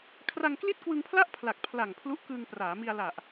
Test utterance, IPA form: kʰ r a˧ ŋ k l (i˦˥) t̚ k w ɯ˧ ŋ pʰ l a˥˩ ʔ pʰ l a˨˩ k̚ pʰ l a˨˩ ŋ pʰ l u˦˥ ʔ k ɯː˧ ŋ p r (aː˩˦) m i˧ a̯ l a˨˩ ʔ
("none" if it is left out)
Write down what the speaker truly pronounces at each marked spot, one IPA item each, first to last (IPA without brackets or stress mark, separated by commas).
i˥˩, aː˩˦